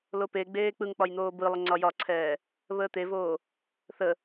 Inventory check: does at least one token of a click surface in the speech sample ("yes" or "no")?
yes